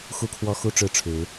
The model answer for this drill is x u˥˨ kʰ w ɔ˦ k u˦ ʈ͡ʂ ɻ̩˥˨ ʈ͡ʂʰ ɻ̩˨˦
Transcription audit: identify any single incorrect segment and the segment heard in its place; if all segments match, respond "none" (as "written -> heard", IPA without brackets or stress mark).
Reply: k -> x